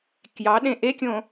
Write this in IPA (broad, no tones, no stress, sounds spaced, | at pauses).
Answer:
k j ɑ ɗ ẽ ʔ e kʲ õ